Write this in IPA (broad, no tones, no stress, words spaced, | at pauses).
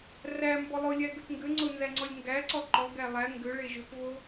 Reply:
ræmbɔ lˠʊlʲæɡʏp ŋɡʏŋ͡ǀʊnzæŋ͡ǀɔlʲ ŋɡæǀɔ ǃɔɡæ lˠæ ŋɡʏɭe ʒʏpvo